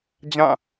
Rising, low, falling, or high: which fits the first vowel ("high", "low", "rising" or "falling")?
falling